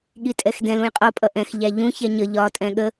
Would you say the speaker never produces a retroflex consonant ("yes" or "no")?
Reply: yes